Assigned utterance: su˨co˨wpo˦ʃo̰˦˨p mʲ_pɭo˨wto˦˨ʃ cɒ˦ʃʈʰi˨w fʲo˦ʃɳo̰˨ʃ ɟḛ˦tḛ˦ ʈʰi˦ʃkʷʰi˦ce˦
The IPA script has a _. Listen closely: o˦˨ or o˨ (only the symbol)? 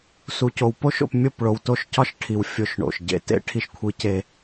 o˦˨